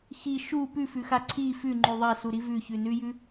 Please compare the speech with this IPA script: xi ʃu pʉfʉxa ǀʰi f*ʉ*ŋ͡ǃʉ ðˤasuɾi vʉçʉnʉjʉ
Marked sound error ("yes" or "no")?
no